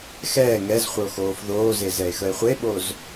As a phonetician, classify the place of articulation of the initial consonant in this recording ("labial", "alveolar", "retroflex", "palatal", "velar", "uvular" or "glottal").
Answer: velar